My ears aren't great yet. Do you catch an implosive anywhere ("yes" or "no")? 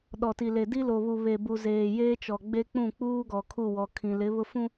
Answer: yes